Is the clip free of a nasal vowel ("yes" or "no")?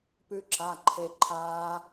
yes